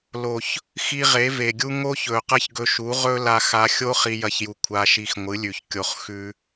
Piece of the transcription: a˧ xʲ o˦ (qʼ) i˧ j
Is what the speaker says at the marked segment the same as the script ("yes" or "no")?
no